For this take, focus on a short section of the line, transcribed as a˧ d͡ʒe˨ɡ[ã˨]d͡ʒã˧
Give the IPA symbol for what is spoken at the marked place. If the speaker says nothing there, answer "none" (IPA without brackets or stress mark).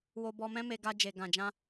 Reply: ã˨